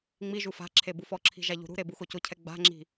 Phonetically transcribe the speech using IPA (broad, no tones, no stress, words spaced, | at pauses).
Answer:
ŋ͡mi ʒufa̤ǁʰe bufɔǁʰi̤ ʒaʎṳɾṳɾe buxocʊcʰɛ ɡ͡ba̤ŋ͡ǁi̤